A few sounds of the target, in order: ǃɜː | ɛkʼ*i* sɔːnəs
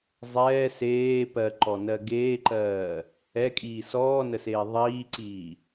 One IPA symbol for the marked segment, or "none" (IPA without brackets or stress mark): iː